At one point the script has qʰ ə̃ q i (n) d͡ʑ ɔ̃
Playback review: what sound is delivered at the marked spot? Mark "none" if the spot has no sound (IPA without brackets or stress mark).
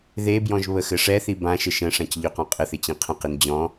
n